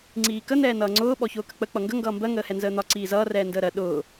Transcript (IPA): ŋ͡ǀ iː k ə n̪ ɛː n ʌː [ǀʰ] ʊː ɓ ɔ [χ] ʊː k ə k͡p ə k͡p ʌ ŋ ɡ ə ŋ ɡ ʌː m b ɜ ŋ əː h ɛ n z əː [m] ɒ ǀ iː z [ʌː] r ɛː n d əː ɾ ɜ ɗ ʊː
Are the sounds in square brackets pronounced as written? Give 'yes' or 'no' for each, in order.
no, no, no, yes

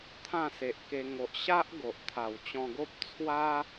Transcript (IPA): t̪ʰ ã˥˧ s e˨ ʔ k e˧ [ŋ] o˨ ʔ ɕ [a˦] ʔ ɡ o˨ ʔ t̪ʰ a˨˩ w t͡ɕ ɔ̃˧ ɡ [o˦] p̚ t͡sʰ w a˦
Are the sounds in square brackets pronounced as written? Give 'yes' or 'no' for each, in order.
yes, yes, yes

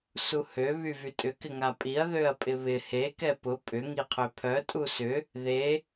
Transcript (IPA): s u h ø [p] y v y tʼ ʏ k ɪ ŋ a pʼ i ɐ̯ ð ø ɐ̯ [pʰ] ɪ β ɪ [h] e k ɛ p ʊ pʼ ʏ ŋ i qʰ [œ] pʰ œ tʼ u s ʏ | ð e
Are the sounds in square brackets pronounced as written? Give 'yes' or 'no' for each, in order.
no, no, yes, no

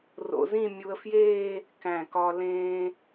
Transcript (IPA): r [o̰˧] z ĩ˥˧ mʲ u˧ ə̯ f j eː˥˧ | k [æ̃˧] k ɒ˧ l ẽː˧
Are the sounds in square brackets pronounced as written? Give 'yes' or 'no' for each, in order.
yes, no

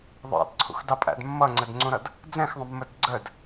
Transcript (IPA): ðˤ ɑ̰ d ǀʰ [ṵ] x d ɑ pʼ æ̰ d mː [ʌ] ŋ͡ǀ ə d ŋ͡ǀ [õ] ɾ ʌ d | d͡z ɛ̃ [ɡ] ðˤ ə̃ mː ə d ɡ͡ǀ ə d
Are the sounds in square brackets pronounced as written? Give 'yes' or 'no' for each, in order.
yes, yes, no, no

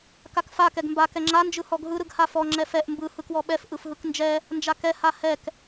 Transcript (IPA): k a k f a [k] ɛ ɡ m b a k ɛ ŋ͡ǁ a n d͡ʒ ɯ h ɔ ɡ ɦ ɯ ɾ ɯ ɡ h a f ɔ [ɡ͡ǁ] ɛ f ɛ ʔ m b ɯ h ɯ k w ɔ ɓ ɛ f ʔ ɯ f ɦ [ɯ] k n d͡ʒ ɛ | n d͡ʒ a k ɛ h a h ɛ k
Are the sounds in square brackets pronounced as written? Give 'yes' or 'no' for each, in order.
yes, no, yes

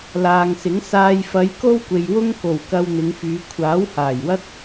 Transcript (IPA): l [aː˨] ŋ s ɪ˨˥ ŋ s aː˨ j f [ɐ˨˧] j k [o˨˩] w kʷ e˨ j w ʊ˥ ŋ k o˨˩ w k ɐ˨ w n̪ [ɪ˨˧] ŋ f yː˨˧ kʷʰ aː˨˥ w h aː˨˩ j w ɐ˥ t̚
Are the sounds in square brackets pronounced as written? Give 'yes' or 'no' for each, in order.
yes, yes, no, yes

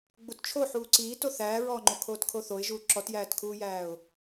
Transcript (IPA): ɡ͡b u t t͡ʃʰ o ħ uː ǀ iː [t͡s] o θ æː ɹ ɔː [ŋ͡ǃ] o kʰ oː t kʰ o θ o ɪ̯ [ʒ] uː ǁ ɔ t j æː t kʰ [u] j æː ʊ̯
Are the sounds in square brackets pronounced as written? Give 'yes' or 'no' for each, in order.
no, yes, yes, no

